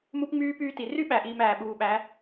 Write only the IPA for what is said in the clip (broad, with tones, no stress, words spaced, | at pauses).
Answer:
mu˦pŋ͡myː˦ pyː˦ti˨ ry˦ɓæ˨ʔiː˨m æː˨ɓuː˨ɓæ˨˦